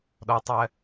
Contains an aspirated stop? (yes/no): no